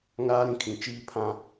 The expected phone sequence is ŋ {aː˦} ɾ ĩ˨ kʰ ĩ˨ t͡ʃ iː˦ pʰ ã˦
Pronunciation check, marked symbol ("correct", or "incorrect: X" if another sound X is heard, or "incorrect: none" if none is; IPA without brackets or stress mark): correct